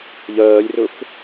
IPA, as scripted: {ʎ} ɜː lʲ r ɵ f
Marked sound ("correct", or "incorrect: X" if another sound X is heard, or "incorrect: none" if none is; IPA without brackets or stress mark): correct